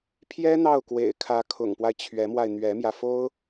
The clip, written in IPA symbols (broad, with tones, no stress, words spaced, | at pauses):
pʰjɛ˥n̪ɑ˥˩ʊ̯kwḛ˨˩ɪ̯kʰä˧˥ kʰʊ̰˨˩ŋpwa˦ɪ̯ t͡ɕʰɥɛ˧˥mwa˧ɪ̯ n̪ɥɛ˧˥mjä˧fo˥ʊ̯